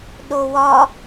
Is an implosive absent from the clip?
no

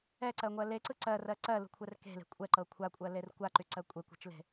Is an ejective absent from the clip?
no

